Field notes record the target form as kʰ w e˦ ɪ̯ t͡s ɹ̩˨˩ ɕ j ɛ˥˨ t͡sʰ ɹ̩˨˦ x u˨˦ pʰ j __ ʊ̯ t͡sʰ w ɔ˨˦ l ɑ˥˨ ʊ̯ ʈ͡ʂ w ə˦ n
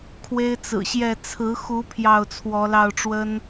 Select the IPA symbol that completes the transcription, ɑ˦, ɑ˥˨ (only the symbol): ɑ˥˨